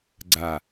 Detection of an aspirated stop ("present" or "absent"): absent